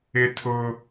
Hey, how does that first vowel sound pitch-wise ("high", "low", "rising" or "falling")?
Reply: high